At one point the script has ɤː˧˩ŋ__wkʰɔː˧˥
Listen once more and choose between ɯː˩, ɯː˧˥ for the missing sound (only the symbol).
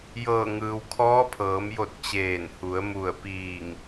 ɯː˩